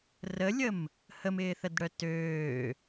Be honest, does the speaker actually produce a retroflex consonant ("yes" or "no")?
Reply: yes